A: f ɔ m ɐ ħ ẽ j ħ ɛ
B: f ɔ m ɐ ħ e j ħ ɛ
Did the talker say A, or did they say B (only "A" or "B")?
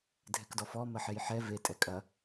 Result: B